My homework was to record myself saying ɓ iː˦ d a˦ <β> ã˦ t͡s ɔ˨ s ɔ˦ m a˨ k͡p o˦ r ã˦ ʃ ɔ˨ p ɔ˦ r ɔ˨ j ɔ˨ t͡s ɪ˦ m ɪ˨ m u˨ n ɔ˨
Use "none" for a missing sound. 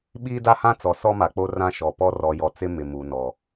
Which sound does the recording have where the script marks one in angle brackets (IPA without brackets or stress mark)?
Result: h